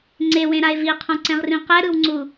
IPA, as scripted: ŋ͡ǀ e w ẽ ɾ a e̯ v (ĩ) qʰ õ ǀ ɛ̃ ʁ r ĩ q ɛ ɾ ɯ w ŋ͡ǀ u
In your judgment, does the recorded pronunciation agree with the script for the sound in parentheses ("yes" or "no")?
no